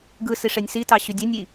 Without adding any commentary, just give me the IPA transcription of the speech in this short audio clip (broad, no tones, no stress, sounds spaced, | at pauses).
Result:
ɡ ɯ s i ʂ e nʲ s i t ɑ ɕ y dʲ æ nʲ i